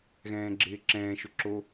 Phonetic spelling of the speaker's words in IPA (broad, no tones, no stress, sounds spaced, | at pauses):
ɣ ɛ̃ː ɡ͡ǁ ɪː ǁ ɛ̃ː ʃ ʊ ǁ o